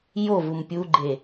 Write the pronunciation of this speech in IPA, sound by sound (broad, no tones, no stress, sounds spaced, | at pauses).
j o v u m pʲ u ɡ͡ǃ e